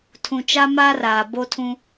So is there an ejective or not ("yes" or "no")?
no